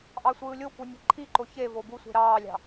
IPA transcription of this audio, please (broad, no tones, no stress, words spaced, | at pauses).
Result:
ʔɑsʷɯːlʲokʷɯ nʲe̤ǃʰiǃo çe vobusʷe̤ ɾɑːlʲɑ̤